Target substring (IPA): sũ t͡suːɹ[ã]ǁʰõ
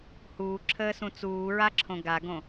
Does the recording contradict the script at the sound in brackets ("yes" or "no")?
yes